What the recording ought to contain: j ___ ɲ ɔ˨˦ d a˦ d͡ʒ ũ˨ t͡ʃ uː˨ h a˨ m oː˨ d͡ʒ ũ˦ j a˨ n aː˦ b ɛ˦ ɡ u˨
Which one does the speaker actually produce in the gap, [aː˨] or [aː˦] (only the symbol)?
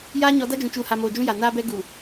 aː˦